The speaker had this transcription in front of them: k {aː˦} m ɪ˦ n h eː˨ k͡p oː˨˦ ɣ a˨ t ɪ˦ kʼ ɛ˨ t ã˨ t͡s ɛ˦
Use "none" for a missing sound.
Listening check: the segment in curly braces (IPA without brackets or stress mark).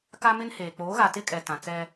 a˦